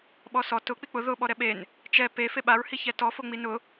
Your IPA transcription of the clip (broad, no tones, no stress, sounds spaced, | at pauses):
ɓ ɔ s ɔ t ʊ k͡p i k͡p ʊ ð ʊ ɓ ɔ ɾ ɛ ɓ e n | t͡ʃ ɛ p e f e ɓ a ɹ h i ç ɛ t ɔ f o ŋ͡m i n ʊ